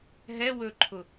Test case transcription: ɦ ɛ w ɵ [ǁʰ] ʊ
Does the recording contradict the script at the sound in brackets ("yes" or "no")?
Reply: yes